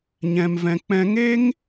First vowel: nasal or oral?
nasal